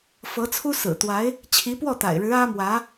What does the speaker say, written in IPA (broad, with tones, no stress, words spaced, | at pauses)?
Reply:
fɤ˧˥t͡sʰu˥sɹ̩˨˩t̪wa˧˥ɪ̯ | t͡ɕʰi˧˥pwɔ˥˩t̪a̰˨˩ɪ̯ɻɻ̩˧˥ ä˥mwä˧˥